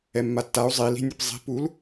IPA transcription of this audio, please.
ɛ mː a tː a u̯ zˤ i l i̤ nʲ ɯ p zˤ i̤ p u l

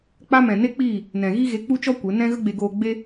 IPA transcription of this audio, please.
k͡p a˦ m ɛ̃˨ n e˦ k͡p iː˦˨ | n ɛ̃˨ ɣ i˦ ɣ e˧ k͡p u˦ t͡ʃ ɔ˦ kʷ e˨˦ n ɛ̃˦ ɣ ə˦ ɡ͡b e˧ ɡ oː˧ ɡ͡b e˦

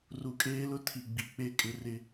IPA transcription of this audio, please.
r u˨ kʼ eː˦ l ʊ˦ tʰ i˨ ɡ͡b i˨ k͡p e˦ kʼ ɪ˦ r ɪ˦

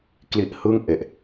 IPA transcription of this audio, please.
k l i˦˥ ʔ h ɯ˥˩ ŋ ʔ e˨˩ ʔ

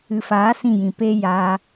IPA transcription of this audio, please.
ɨ˨ f aː˨˦ s ĩ˦˨ j ĩ˨ p eː˦ j aː˧

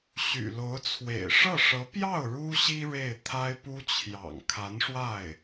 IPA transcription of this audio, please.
ɕ y̰˨˩ l o˧˥ ʊ̯ t͡sʰ w ḛ˨˩ ɪ̯ ʂ ɤ˥˩ ʂ ɤ˧˥ p j ɑ˥˩ ʊ̯ ɻ u˥ ɕ i˥ ɻ e˥˩ ɪ̯ t̪ʰ a˥ ɪ̯ p u˥ t͡ɕʰ j ɑ̰˨˩ ŋ kʰ a˧˥ n ʂ w a˥˩ ɪ̯

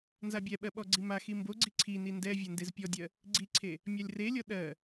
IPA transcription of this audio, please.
n z a bʲ ɛ ɓ ɜ ɓ ɔ ɡ͡ǀ i m a x i m b o ɡ͡ǀ i ǀʰ i n i n d ɛ vʲ ɛ n d e z pʲ ɔ dʲ ɜ | ɡ͡ǀ i ǀʰ e | mʲ a lʲ r e lʲ ɔ ɗ ɜ

